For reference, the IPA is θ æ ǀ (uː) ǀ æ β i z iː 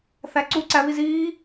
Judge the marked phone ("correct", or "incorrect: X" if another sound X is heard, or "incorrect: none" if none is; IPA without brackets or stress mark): incorrect: u